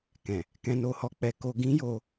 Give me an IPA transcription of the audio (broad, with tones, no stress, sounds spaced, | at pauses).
k ɛ̃˨ | k ɛ̃˧ n o˧ h ɔ˧ k͡p ɛ˧ k o˧ ɡ ĩ˦ j o˧